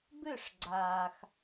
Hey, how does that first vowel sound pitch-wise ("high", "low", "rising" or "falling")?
falling